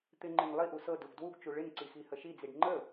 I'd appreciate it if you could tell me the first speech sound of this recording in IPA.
t̪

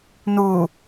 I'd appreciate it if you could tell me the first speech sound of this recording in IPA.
n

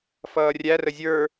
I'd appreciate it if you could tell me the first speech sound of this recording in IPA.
f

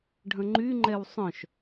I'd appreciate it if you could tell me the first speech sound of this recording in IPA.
ɖʱ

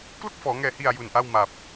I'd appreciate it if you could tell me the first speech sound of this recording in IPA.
k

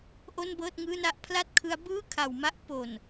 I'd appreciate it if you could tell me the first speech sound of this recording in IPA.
ʔ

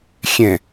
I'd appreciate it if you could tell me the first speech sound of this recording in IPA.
xʲ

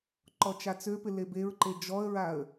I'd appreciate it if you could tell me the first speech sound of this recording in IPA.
ǃ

